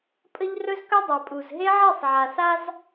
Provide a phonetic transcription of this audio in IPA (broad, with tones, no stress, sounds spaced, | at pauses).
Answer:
pʼ ə˦ ʎ r ɵ˦ z k ɵ˦ dˤ a˨ pʼ u˨ z ɦ e˦ ʕ e˦˨ sˤ ʕ a˨ s a˦ z